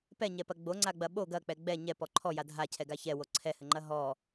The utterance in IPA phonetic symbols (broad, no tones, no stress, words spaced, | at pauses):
pɛɲɛpɐ ɡ͡boŋ͡ǀaɡ͡bɐ ɓo ɡɐk͡pɛ ɡ͡bɛ ɲɛpɔ ǃʰɔja dʱacʰɛɡa çɛwo ǀʰɛhɘŋ͡ǃɐ ɦɔ